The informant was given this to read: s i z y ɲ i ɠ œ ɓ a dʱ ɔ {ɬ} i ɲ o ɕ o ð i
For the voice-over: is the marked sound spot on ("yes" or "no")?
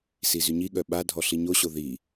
yes